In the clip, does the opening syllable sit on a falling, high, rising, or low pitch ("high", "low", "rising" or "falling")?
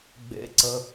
low